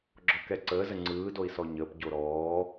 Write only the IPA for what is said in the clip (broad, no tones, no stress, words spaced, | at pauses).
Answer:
ɡ͡ǁɔkɛǀəːzə ŋ͡ǀɯːdoi̯ sɔɲəːpɟo ɾɔː